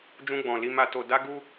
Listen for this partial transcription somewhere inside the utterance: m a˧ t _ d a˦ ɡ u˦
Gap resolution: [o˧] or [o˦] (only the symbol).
o˧